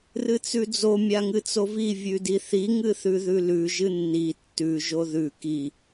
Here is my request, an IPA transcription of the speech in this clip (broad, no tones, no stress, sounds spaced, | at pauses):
r ɨ t͡s ʉ d͡z o mʲ a ŋ ɨ t͡s o v i vʲ ʉ d i θ i ŋ ɨ θ ʉ ð ʉ l ʉ ʒ ɨ nː i tː ʉ ʒ o ð ʉ k i